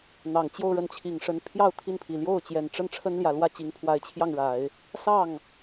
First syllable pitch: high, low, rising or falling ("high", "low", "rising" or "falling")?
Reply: low